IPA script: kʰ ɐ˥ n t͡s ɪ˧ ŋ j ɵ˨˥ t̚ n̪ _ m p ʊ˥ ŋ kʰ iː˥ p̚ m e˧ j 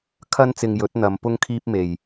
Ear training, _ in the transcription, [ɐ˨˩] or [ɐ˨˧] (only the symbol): ɐ˨˧